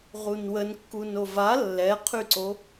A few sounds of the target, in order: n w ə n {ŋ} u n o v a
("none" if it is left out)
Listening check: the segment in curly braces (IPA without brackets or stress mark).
kː